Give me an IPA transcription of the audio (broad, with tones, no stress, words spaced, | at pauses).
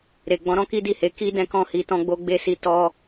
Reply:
ɾe˨ ɡ͡bɔ̃˨˦ɾɔ̃˦ki˦ di˦˨he˨˦ ki˦ dɛ̃˦kɔ̃˦˨ hi˨˦tɔ̃˦ɡ͡bo˦ ɡ͡be˦˨si˧ tɔ˦